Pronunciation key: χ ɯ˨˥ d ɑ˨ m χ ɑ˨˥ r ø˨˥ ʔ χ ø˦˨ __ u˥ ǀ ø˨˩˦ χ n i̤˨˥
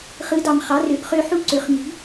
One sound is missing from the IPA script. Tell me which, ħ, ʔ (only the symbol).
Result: ħ